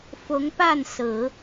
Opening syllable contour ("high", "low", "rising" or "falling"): rising